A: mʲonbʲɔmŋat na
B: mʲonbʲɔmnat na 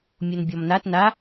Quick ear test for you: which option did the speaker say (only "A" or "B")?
B